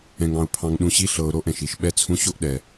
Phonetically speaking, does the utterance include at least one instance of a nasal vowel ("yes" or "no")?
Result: yes